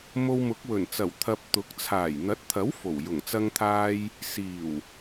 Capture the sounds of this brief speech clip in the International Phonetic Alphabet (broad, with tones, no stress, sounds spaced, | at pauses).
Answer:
m o˧ w m ʊ˨˥ k̚ w ɵ˨˩ n t͡s ɐ˨˩ w t̪ʰ ɐ˧ p̚ t̪ ʊ˨˥ k̚ t͡sʰ aː˨˩ j n̪ ɐ˨˥ t̚ t̪ʰ ɐ˨˥ w f o˨˩ w j ʊ˨˩ ŋ t͡s ɐ˧ ŋ t̪ʰ aː˧ j | s iː˨˩ w